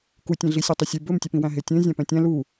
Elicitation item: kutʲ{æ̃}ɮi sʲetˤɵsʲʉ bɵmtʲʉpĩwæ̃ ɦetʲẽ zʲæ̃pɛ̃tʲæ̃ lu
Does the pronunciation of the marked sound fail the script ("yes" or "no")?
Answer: yes